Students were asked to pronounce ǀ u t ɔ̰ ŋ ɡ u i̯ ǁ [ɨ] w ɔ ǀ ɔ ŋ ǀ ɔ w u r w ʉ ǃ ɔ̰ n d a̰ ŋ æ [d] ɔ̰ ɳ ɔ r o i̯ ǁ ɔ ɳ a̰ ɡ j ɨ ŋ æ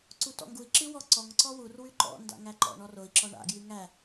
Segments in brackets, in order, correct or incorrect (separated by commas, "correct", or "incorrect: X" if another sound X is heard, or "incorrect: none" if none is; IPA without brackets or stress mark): correct, incorrect: ǃ